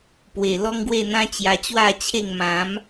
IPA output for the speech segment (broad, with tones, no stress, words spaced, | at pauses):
pwe˨˩lɔ˦ŋɡwe˥˧n̪ã˦ t͡ɕja˧t͡ɕwa˥˧t͡ɕʰe˥˧ŋ mã˨˦m